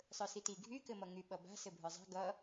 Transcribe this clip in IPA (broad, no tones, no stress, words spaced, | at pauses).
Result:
sˤə˞siti ɡʱy kɘmʌŋy ɓʌba̤ sɘbʱə˞zˤa̤ ɡʌ